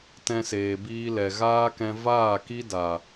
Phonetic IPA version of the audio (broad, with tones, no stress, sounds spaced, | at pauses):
t ɛ̃˧ s eː˨ b iː˧ l ɛ˨ ɣ aː˦ k ɛ̃˧ v aː˦˨ k i˦ d a˨